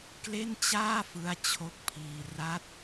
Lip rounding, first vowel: unrounded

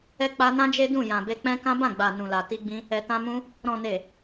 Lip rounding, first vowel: unrounded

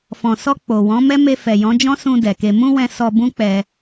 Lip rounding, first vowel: rounded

